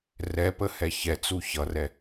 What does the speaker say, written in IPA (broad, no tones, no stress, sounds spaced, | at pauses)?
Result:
r ɛ p ə h ɛ ç ɛ t͡s u ç ʌ r ɛ